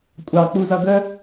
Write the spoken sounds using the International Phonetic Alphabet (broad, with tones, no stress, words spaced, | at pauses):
kʷʼɑ˨ k͡pu˨zʌ˨ ɡə˦